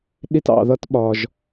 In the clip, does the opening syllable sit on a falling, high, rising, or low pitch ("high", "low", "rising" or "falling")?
high